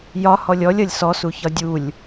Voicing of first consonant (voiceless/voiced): voiced